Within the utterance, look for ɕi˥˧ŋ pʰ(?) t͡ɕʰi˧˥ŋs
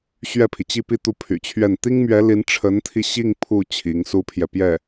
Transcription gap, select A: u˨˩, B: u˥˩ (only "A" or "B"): B